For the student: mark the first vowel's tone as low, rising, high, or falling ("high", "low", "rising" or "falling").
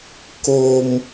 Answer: high